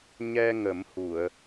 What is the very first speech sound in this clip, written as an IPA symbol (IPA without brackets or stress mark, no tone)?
ɲ